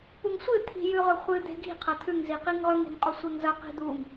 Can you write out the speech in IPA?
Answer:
p u ŋ sʷ ɨ t̪ʰ i̤ j ʉ ʁ ɵ χʷ ɨ d̪ e̤ ɡ i̤ qʰ ɐ t̪ʰ ʉ ŋ z i q i ŋ ʁ ɵ ŋ e̤ ŋ qʼ o sʷ e ŋ z ɐ q i̤ d̪ u ŋ

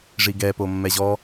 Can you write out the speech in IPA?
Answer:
ʐ i ɡ ɛ p o mː ɛ ʑ ɔ

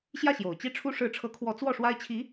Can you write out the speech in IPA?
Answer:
ɕ j ä˥˩ ɕ j o˨˩ ʊ̯ t͡ɕ i˥˩ ʈ͡ʂʰ u˥ ʂ ɻ̩˧˥ ʈ͡ʂʰ ɤ˧˥ kʰ w ɔ˧˥ t͡s w ɔ˥˩ ʂ w a˥ ɪ̯ t͡ɕʰ i˧˥

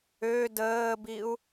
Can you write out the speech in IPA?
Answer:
ø d əː b i u̯

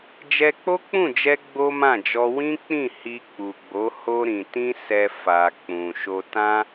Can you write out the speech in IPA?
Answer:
d͡ʒ ɛ˧ k͡p o˦ k͡p ũ˦˨ d͡ʒ ɛ˧ ɡ͡b o˦ m ã˦˨ d͡ʒ ɔ˧ w ĩ˦ k͡p ĩ˦˨ h i˧ k͡p u˨ ɡ͡b o˨˦ h o˧ ɾ ĩ˨ t ĩ˧ s ɛ˨ f a˨ k͡p ũ˨ ʃ o˨ t ã˧

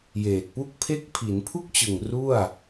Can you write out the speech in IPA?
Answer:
j eː˨˩ t̚ p u˥˩ k̚ pʰ e˥˩ k̚ pʰ i˩˦ n pʰ u˥˩ k̚ t͡ɕ ɯ˨˩ ŋ r u˥˩ a̯

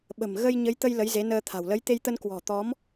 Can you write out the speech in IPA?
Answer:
ɓ ə̤˨˩ m ɣ ə˧ j ɲ ə˨˦ j t̪ ə˧ j l ə˨˦ j z e˨˦ n əː˧ t̪ʰ a̤˨˩ w l ə˨˦ j t̪ e˧ j t̪ ə˧ n k w ɔ̤˨˩ t̪ ɔ˨˦ m

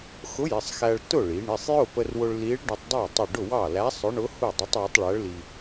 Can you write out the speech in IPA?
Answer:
x ʊ˧˥ j ɪ˩˧˩ sˤ x æ˧ ɭ t ʊ˥˨ ɭ i˩˧ ɳ ɪ˩˧˩ sˤ j ʊ˥˨ p ə˧ r w ʊ˧ ɭ l i˧˥ ɭ ɖ ə˧ tˤ dˤ æ˥˨ tˤ ɪ˥˨ ɖ ʊ˥˨ w ɑ˥˨ l æ˧˥ sˤ ʊ˧˥ ɳ ʊ˧˥ h u˥˨ dˤ ə˧˥ tˤ w ʊ˧˥ tˤ ɭ æ˧˥ ɭ l i˧

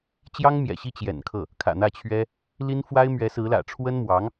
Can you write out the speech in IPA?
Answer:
t͡ɕ j ɑ˥ ŋ m j ɛ̰˨˩ ɕ i˥˩ t͡ɕ j ɛ̰˨˩ n kʰ ɤ˥˩ | kʰ ä̰˨˩ n̪ ä˥˩ t͡ɕʰ ɥ ɛ˥ | l i˥ n f w a˥ ɪ̯ m ɥ ɛ˧˥ s ɹ̩˧˥ l ä̰˨˩ ʈ͡ʂʰ w ə˥ n m w ɑ˧˥ ŋ

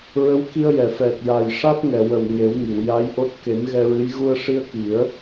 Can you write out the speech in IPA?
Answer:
ɹ ə˧˥ w k i˧ ə̯ j ɛ˨˩˨ f ɛ˨˩ t̚ j a˨˩ j ʂ a˦˥ t̚ ŋ ɛ˨˩˨ w ə˨˩ w ŋ e˨˩˦ w ŋ i˨˩˨ w j a˧˥ j ʔ o˦˥ t̚ k e˨˩˦ m ɣ ɛ˧ ɹ ɨ˧˥ j ɣ u˧ ə̯ ʂ i˧ ə̯ k i˨˩˦ ə̯

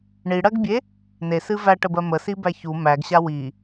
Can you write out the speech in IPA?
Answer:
ɳ i ɽ ɜ ɡ bʲ e | n e s ɨ v æ ʈ ə b ɜ m ə s i b æ ç u m æ ɡ ɕ a w i

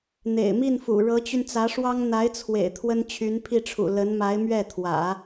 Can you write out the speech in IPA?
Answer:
n̪ ḛ˨˩ ɪ̯ m i˥˩ n f ṵ˨˩ ɻ ɤ˧˥ t͡ɕ y˧ n t͡s ä˧˥ ʂ w ɑ˥ ŋ n̪ a˧˥ ɪ̯ t͡sʰ w ḛ˨˩ ɪ̯ t̪ʰ w ə˥ n t͡ɕʰ y˧˥ n pʰ i˥˩ ʈ͡ʂʰ ṵ˨˩ l ə˧˥ n m a˧˥ ɪ̯ m ɥ ɛ˥˩ t̪ʰ w ä̰˨˩˦

